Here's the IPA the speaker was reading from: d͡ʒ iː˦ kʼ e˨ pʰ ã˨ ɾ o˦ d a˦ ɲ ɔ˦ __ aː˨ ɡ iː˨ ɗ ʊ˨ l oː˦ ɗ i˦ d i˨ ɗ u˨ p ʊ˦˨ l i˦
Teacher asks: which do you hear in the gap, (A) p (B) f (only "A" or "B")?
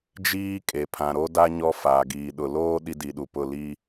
B